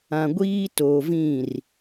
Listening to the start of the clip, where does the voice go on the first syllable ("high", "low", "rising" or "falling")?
low